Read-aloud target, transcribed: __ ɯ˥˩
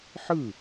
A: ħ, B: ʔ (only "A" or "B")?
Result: A